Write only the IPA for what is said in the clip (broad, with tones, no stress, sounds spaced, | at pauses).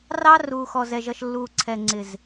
r ɑ˦ r uː˨ x ɔ˨ z ɛ˨ ʒ ʌ˨ ʃ lː uː˨ ǀʰ ɛ˨ ŋ͡ǀ ɪ˨ z